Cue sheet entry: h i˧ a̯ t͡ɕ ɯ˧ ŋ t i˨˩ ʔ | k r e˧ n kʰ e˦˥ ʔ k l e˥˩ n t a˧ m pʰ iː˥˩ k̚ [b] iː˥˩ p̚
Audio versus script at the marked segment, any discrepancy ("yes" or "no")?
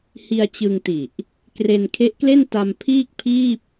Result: yes